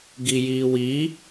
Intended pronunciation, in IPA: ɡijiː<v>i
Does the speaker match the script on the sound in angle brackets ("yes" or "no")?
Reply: no